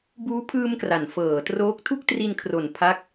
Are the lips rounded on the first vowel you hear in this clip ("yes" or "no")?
yes